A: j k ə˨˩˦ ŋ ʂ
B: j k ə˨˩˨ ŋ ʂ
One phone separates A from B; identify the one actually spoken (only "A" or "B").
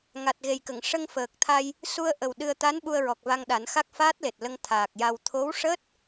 B